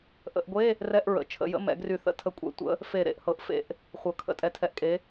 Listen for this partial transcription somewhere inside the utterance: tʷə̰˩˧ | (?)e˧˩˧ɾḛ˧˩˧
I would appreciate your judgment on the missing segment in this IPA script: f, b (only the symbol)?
f